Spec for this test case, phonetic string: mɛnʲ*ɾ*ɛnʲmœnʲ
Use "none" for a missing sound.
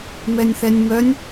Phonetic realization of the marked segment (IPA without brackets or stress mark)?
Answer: θ